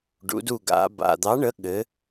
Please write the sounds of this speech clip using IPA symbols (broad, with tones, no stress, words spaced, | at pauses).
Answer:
ɖṵ˩˧du˧˩ ɡa̰˩˧ ba̰˩d̪ɑ˨˥ɳə˨˥ ɠɘ˩˧